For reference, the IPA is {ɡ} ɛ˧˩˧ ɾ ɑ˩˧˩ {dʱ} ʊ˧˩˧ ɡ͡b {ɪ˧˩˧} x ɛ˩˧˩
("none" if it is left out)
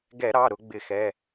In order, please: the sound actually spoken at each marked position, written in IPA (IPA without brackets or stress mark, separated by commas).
ɡ, ɾ, ɪ˧˩˧